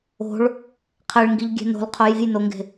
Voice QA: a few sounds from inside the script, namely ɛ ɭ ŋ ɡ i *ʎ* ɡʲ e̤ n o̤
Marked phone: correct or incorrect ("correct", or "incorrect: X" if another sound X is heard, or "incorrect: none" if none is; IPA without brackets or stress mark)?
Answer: correct